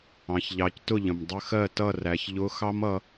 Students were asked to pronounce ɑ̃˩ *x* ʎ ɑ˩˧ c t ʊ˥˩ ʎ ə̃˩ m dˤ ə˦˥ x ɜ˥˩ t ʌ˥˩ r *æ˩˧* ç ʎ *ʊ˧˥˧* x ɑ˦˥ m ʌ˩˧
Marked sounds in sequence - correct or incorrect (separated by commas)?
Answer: incorrect, correct, correct